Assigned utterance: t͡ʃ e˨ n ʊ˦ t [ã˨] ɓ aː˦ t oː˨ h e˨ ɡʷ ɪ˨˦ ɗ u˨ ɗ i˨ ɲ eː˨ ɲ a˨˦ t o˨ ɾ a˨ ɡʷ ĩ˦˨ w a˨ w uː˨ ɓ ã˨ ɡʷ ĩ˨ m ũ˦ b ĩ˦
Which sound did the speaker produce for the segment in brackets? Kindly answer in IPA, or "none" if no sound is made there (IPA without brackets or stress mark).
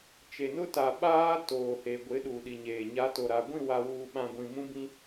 a˨